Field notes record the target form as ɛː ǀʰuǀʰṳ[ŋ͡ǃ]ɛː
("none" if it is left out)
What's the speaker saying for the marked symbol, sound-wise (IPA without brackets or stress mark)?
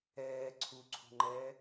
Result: ŋ͡ǃ